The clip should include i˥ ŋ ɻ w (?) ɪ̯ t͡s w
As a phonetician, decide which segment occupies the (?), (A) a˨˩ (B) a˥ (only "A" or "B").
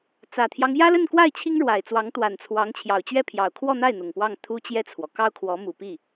A